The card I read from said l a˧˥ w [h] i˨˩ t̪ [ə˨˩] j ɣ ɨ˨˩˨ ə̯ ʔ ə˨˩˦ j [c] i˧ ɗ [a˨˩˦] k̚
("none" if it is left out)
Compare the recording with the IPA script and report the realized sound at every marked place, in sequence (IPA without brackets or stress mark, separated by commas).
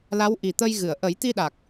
ʔ, ə˧, t̪, a˨˩